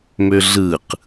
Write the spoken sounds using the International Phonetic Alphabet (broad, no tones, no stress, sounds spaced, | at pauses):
m ø ɮ ɯ q